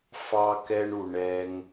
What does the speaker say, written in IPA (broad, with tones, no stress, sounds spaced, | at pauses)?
f ɑ˩ k ɛ˩ ɳ u˩ ɳ ɛ˩ ŋ